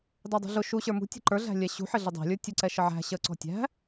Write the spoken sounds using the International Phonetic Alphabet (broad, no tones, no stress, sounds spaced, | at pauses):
d ɑ dˤ ṳ ɮ ʊ ʃ u ɕ ə˞ m ṳ tʲ ə̤ ǃ ə˞ ɮ æ̤ lʲ ɛ ɕ ṳ ħ ɪ ɮ ɪ dˤ æ̤ lʲ ə˞ tʲ ə ǀ ɛ ʃ ə ʕ æ̤ ɕ ə ǀ ɔ̤ tʲ æ̤